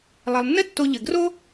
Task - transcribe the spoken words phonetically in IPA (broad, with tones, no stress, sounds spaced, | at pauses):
lˠ e˩ lˠ nː ɘ˦ tː o˨ ʎ ɘ˩ ɡ r o˥